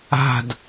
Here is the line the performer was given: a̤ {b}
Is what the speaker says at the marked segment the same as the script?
no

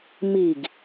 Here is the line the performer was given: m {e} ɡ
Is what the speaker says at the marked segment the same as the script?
no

